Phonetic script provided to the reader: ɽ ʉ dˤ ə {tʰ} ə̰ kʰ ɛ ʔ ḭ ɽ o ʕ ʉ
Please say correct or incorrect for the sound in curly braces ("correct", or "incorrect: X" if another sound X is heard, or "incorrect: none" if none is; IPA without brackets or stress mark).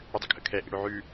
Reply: incorrect: kʰ